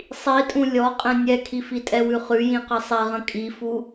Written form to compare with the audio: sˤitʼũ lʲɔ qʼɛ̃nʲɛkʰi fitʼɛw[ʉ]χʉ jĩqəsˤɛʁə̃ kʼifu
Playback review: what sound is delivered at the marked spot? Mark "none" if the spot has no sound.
ʉ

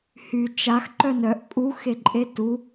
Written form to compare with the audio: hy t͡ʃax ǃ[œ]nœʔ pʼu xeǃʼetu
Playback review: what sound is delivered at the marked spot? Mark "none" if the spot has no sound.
œ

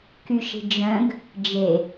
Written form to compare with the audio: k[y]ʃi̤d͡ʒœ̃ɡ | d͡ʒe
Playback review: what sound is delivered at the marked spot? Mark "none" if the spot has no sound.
y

